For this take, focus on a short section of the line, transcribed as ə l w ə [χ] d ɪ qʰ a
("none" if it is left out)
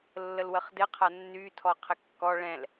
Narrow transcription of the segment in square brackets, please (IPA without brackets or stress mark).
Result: χ